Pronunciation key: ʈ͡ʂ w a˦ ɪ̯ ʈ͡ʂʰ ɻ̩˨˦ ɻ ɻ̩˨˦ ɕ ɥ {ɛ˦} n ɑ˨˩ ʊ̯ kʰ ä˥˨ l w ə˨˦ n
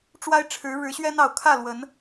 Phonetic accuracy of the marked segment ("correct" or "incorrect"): correct